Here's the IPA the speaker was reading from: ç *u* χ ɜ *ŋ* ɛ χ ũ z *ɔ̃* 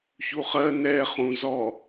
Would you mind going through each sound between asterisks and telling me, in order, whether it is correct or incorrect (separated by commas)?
correct, incorrect, incorrect